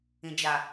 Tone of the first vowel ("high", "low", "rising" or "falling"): low